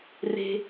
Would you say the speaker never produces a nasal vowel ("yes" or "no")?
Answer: yes